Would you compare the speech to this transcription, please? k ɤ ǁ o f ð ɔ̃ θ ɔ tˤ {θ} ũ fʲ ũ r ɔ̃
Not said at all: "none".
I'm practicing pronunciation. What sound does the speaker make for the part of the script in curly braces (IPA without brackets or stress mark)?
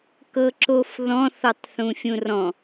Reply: θ